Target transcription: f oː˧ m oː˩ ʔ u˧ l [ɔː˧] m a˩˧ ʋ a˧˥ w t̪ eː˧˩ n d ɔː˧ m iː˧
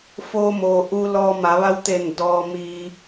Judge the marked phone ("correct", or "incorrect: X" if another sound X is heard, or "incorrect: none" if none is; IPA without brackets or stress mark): correct